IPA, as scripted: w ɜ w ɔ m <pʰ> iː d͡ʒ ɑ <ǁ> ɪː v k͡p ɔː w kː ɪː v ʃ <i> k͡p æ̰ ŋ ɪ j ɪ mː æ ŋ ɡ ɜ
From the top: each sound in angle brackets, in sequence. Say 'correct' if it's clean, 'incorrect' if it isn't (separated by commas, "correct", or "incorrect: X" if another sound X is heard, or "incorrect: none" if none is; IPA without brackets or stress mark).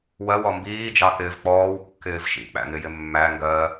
incorrect: b, incorrect: k, incorrect: ḭ